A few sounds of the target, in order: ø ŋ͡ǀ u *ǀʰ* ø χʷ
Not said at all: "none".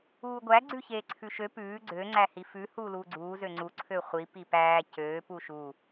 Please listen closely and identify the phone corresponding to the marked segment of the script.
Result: ǀʰ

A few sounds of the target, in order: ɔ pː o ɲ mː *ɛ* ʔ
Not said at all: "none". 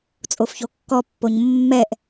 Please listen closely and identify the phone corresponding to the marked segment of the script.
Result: ɛ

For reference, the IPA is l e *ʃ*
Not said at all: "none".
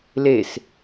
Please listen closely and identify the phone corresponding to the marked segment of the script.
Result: s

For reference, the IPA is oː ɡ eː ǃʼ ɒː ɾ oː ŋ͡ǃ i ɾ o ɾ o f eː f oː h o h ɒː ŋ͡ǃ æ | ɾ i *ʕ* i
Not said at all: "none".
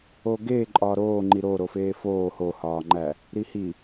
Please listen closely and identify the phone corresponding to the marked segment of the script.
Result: h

